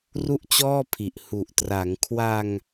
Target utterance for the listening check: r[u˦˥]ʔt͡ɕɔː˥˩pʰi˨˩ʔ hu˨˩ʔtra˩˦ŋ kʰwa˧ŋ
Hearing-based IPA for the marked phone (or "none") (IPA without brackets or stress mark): u˥˩